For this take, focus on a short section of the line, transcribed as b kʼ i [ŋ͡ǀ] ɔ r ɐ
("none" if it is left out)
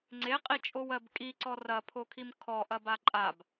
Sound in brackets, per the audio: ǀ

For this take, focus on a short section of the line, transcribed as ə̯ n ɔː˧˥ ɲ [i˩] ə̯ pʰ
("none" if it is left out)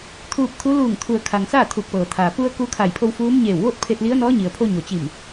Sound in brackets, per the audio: i˩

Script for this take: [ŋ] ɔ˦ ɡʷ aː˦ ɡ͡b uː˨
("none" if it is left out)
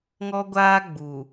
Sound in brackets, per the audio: ŋ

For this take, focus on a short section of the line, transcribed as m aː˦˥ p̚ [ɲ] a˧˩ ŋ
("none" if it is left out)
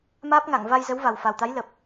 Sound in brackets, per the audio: ŋ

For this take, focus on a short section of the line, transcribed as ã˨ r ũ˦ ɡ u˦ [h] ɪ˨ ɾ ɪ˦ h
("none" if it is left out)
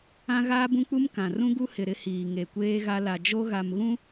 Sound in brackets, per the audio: h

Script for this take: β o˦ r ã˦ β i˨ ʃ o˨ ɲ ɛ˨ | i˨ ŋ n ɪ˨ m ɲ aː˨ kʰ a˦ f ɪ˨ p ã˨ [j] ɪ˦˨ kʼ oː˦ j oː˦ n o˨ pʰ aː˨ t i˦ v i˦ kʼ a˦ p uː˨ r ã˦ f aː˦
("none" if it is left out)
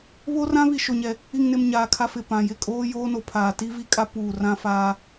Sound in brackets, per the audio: j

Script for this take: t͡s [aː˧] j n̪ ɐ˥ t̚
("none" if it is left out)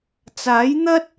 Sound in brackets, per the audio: aː˨˥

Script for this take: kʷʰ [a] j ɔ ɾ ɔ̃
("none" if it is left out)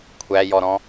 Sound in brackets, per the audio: æ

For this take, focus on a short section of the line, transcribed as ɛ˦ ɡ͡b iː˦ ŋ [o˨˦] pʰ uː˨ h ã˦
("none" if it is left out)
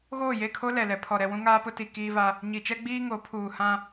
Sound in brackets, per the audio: o˨˦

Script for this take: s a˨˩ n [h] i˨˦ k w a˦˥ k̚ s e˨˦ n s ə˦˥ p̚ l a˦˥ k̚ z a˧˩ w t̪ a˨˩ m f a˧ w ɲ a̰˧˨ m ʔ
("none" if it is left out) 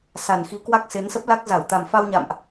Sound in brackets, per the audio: x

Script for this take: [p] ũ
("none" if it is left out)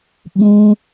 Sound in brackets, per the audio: ɓ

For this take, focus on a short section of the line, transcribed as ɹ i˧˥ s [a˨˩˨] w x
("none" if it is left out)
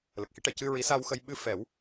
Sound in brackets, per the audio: a˧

